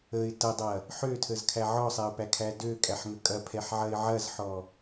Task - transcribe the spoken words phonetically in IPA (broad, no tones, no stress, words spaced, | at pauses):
əɪ̯ tɐdˤɐ | ħøtʰəzkʰæ ʕɔsˤɛʊ̯pækʰæ døkʼæħŋə kʼɐpʰɛħʕɐɪ̯ ʕɐzħɔ